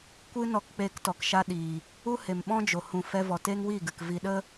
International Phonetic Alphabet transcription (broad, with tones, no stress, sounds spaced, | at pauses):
kʷ ɨ˦ n ɔ˧ k k͡p eː˧ k t ɔ˨ k ʃ a˦ ɗ iː˨ | u˦ h e˨ m ɓ ɔ̃˦ d͡ʒ o˨ h ũ˨ f ɛ˧ v ɔ˨ t eː˦ ŋ w i˦˨ ɡ ɨ˨ k v i˨ ɗ ə˦